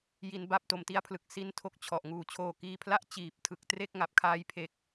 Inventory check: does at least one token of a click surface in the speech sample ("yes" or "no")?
no